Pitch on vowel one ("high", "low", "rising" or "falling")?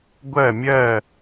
falling